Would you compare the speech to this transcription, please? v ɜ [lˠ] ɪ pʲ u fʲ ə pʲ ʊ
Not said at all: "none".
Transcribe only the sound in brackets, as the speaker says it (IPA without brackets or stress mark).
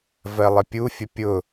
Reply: lˠ